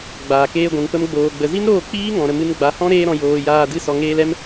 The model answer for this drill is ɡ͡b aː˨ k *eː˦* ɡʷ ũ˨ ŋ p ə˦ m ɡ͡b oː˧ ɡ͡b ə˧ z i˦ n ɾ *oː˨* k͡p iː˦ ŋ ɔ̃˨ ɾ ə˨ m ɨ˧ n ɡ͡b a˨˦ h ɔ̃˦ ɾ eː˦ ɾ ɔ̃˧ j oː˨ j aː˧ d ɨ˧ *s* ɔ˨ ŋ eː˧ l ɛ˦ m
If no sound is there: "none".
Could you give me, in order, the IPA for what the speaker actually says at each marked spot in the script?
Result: eː˧, oː˦˨, s

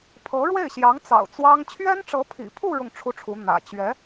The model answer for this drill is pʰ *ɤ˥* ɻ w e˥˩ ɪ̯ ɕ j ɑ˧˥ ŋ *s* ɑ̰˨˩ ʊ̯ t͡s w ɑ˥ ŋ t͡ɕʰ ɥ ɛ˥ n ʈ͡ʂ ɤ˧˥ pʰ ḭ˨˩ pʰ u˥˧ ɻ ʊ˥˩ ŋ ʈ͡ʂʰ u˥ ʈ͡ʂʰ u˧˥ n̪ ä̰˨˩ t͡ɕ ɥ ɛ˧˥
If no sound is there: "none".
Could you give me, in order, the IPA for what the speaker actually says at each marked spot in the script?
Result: ɤ˧˥, t͡s

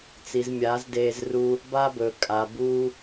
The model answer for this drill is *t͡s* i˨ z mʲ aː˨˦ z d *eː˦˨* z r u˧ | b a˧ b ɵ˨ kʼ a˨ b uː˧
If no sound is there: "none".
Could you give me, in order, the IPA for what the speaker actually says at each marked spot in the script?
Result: t͡s, eː˧

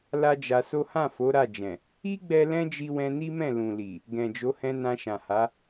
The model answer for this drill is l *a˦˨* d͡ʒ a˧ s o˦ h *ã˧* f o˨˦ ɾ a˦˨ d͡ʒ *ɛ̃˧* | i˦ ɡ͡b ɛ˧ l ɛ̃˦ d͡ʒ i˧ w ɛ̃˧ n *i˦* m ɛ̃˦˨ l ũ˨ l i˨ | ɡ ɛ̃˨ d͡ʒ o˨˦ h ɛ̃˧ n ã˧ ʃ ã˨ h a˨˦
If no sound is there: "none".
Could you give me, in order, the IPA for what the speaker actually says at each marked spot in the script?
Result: a˦, ã˦˨, ɛ̃˨, i˦

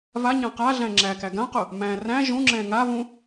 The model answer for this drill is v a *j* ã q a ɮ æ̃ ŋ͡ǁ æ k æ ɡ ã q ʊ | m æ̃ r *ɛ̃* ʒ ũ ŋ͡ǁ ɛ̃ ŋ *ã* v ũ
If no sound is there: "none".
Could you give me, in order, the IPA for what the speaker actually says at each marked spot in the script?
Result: ɲ, æ̃, a

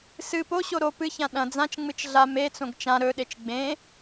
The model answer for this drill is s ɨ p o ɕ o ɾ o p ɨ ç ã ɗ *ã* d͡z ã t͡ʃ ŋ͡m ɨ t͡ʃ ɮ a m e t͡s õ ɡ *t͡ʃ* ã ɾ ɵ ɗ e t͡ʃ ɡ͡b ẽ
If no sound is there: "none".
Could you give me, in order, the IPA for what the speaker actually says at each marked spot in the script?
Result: ɐ̃, t͡ʃ

